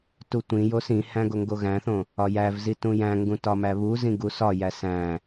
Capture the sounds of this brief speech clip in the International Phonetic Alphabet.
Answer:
tutʷĩjos ĩhæ̃ ɡoŋɡoɣæ̃θõ | ɒjævzi tũjæ̃ŋɡũ tɒmæβuzĩ ɡusɒjæ sæ̃

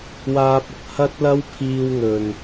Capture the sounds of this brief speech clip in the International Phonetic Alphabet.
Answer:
waː˧p̚ʊ˨k̚ hɐ˥t̚lɐ˥w pʰiː˧wŋɵ˨n

